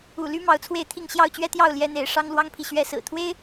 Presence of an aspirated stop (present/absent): present